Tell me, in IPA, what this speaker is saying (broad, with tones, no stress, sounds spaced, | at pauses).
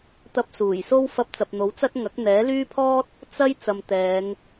t̪ ɐ˧ p̚ s uː˨˩ j s o˥ w f ɐ˧ p̚ t͡s ɐ˨ p̚ n̪ o˨˥ w t͡s ɐ˥ t̚ ŋ ɐ˨˥ k̚ n̪ ɛː˨˥ l yː˥ pʰ ɔː˥ t̚ | t͡s ɐ˥ j t͡s ɐ˨ m t̪ ɛː˨˧ ŋ